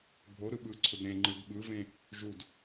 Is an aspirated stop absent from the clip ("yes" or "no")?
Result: no